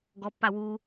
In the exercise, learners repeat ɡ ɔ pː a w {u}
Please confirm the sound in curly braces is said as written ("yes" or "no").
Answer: yes